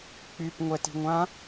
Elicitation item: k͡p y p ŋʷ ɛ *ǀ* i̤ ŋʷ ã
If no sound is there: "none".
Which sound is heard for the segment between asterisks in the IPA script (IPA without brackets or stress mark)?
t